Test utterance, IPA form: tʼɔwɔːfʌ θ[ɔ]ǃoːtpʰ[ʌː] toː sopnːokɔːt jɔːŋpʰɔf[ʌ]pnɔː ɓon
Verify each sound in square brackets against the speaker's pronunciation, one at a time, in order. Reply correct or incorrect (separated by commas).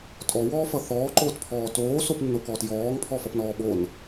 incorrect, incorrect, correct